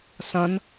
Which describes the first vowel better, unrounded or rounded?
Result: unrounded